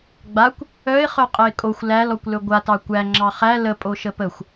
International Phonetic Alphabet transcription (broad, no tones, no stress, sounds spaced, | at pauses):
ɡ͡b a kʷ | œ ɪ̯ χ œ qʼ ə ɪ̯ kʼ o xʷ l æ l ɔ kʷ l ɵ ɡʷ a t ɑ kʷ æ ŋ͡ǁ ɑ χ æ l ə pʼ o ʃ ə p ə xʷ